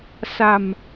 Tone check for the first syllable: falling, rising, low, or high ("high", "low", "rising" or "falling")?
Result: low